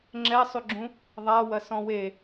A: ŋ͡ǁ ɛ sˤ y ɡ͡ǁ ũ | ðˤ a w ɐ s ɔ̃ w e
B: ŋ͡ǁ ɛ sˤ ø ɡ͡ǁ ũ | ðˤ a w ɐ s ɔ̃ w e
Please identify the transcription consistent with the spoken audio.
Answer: A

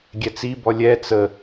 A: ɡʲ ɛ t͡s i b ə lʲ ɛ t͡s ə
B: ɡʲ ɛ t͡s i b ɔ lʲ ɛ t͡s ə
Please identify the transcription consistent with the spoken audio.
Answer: B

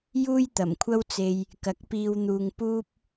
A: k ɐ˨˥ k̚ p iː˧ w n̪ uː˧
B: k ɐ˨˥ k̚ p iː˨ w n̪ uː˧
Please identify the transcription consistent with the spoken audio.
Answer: A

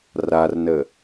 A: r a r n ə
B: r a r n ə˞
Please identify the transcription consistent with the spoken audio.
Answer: A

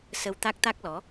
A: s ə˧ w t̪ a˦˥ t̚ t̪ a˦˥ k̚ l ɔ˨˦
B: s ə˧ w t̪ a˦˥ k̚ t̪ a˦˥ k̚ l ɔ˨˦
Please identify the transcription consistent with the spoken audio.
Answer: B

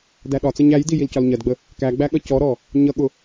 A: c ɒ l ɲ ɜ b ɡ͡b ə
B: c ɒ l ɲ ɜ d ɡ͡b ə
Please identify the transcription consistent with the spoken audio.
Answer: B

